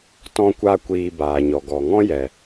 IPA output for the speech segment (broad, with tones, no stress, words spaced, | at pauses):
tɔ̃˧kʷa˧kʷiː˨ baː˨ɲɔ˨ ɡɔ˨ŋɔ̃˦jɛ˨